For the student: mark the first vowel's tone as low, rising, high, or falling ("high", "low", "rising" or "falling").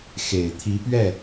low